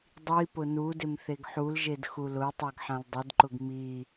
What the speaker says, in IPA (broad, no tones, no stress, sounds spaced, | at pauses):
dˤ i p ʊ n u d ɪ m θ e ɡ ħ u l ʒ e d x u l ʊ ə̯ tˤ ɛ ɡ ħ ã l dˤ ɪ d ǃ ʊ ɡ m i